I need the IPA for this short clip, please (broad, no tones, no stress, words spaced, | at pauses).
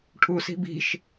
ʈʰusi̤ bi̤ʃ